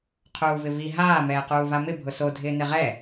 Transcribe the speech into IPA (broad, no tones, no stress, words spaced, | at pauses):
qʰuːvɪvi ɦaː mɛːquːvamɪ bʱʊso dʱɪːnɪʁɛ